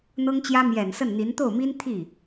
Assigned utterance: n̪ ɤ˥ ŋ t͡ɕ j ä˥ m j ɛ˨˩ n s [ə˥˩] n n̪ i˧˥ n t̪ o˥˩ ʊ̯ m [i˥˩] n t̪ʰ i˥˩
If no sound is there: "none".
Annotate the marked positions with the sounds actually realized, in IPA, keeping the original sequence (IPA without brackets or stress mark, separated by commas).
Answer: ə˥˩, i˥